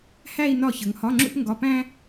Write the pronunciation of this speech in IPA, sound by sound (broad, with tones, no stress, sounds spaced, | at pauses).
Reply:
h æ˥˧ i̯ n ɒ˥˩ ç ə˨˦ ŋ h ɒ˧˥˧ ŋ͡ǁ ṵ˥˧ p ŋ ɡ ɒ˧˥˧ p æ̃˥